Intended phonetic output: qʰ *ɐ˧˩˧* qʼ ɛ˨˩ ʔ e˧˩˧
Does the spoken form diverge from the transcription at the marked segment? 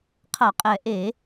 no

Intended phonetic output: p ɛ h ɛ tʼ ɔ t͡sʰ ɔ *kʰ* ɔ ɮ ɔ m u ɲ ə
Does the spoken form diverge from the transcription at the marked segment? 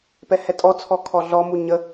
no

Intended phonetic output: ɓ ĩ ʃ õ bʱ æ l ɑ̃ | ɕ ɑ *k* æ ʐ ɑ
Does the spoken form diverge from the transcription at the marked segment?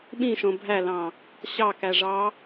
no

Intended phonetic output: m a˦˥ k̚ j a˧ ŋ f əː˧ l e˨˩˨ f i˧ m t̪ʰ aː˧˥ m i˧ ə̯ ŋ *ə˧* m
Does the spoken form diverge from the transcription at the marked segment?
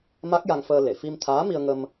no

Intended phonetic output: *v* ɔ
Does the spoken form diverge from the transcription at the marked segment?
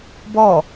yes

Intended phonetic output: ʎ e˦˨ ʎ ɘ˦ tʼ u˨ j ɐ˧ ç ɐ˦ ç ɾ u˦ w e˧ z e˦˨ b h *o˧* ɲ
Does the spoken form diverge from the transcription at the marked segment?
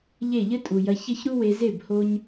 no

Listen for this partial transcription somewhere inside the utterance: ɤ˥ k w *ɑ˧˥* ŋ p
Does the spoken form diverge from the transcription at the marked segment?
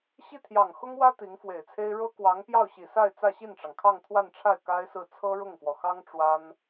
no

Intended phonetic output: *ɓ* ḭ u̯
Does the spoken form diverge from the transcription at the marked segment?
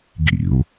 yes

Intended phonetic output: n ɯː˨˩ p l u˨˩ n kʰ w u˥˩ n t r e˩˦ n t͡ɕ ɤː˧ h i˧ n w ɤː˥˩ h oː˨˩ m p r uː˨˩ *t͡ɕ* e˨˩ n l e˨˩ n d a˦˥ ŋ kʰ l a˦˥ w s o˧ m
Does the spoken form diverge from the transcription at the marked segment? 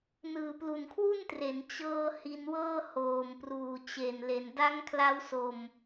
no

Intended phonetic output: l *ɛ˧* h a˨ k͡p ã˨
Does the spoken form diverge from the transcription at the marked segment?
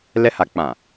no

